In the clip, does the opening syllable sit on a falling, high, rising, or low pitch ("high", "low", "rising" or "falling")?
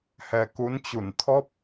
low